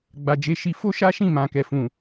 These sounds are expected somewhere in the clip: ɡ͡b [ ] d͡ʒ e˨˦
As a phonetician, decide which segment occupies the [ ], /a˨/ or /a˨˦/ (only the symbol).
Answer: a˨